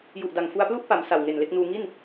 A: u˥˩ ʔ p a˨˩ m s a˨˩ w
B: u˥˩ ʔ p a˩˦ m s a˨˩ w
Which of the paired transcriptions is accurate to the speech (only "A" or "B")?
B